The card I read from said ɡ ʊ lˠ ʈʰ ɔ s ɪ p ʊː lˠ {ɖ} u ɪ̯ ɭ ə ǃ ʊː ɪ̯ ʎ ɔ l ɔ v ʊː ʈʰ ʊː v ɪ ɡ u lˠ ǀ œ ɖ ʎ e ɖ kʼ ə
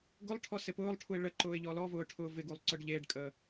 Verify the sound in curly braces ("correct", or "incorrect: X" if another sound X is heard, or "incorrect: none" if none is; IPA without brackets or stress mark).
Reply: incorrect: ʈʰ